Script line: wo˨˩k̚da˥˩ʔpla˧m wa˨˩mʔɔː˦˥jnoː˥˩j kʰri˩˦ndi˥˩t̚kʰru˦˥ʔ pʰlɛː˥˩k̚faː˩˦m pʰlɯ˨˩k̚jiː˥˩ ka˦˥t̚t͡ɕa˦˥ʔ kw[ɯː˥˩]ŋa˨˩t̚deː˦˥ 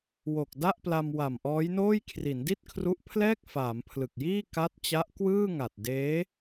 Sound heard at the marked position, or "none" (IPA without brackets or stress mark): ɯː˥˩